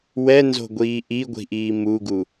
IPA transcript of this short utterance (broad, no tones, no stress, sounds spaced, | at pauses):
w ɛ n z o̤ ɡʷ iː ʔ i ɡʷ i̤ ʔ iː m u ɡ u